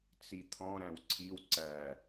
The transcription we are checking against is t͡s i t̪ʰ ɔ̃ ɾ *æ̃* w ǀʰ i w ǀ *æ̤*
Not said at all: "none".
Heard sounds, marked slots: æ̃, æ

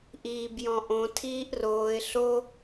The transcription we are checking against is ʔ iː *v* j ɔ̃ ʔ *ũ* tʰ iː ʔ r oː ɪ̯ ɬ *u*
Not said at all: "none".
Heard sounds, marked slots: b, õ, o

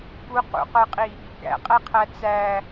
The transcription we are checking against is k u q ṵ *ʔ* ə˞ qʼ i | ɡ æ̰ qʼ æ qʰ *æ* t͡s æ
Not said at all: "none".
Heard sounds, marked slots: q, æ

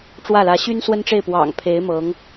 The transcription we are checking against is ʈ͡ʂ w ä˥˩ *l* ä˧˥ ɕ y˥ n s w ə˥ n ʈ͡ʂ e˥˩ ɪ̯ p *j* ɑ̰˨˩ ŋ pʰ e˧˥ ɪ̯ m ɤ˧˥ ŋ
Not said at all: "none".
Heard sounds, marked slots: l, w

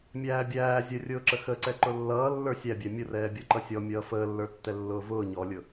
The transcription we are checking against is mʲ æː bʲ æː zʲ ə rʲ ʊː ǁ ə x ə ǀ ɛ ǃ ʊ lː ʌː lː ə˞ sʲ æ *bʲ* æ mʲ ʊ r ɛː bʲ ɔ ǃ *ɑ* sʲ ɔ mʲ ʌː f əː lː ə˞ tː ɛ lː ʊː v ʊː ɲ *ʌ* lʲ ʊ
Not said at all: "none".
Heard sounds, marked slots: bʲ, ʌ, ɔ

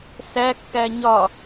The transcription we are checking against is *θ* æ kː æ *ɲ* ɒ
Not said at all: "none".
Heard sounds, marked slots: s, ɲ

